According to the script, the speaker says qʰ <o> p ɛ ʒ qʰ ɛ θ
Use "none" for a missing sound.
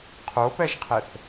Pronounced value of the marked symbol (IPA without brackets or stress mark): o